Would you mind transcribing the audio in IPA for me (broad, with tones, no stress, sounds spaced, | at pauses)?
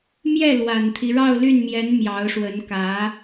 m j ɛ˥˩ l w a˨˩ n t̪ʰ i˦ ɻ ɑ˥˧ ʊ̯ l y˥˩ n m j ɛ˧˥ n m j ɑ˧˥ ʊ̯ ʂ w ə˧˥ n k ä˧˥